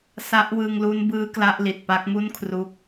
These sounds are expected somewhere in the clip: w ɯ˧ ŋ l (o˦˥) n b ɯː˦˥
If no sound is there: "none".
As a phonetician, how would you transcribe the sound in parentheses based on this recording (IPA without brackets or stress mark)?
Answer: u˦˥